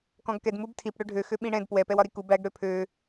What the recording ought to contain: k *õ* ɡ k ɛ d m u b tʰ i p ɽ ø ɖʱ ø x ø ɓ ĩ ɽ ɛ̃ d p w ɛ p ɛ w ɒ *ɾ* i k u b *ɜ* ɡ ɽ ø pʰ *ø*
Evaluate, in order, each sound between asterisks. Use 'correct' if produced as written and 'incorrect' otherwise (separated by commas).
incorrect, correct, incorrect, correct